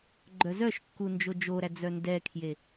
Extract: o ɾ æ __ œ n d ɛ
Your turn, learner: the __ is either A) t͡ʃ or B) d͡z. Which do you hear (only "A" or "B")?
B